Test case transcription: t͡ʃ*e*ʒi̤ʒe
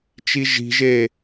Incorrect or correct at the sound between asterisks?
incorrect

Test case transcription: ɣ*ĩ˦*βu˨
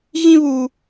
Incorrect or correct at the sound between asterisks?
correct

